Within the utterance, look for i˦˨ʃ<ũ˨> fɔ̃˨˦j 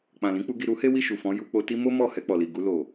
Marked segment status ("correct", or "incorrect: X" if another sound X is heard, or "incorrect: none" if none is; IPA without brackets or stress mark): incorrect: u˨